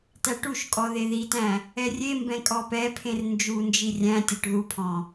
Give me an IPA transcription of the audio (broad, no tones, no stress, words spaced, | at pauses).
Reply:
tæʈuʃkʼɔ ðeðitæ̃ | ɛrʲembɛ̃ kʼɔpɛpʰẽr nd͡ʒund͡ʒi rʲæ̃tʲɔʈ ðupʰɔ̃